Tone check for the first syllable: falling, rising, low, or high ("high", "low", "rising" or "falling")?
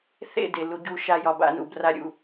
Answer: falling